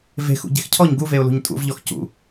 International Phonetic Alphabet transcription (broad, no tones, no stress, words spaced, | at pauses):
ve̤xṵ ɟe̤xcʰɔɲ ɡuveʊ̯lṳɲ tʼṵvʎɔx cṵ